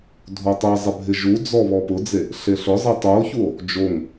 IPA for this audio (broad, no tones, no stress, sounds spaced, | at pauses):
dʱ o tˤ i zˤ ɪ bʱ ɪ ʒ u d͡z ɔ β ɔ p ʊ d͡z e | ɬ e ɬ ʊ zˤ i tˤ u o̯ ç u o̯ | d͡ʒ o ŋ